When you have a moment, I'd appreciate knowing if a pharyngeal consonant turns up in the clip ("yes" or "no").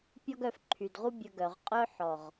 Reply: yes